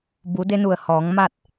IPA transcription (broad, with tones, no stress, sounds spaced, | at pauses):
b u˩˧ d e˧ n u˧˩ ə̯ h ɔː˩˧ ŋ m a˥˨ t̚